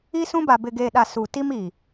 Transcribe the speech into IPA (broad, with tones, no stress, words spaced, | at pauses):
i˦sũ˦ba˨ bɪ˨ɡeː˨ɗa˨ su˨ ti˦mi˨